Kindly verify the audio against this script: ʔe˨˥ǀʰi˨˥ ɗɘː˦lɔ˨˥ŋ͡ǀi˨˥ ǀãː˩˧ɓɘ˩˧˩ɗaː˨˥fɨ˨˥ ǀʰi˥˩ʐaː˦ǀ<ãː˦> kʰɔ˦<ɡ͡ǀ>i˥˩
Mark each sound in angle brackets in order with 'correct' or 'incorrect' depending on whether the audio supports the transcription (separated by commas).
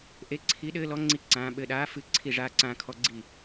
correct, correct